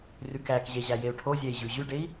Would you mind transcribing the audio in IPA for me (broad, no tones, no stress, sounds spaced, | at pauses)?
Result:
r ʉ k æ k ʑ e ʑ æ j e u̯ ʈʰ o zʲ ɛ i̯ ʑ ʉ ʑ ʉ ɖ e i̯